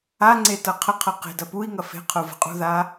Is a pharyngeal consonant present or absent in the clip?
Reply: absent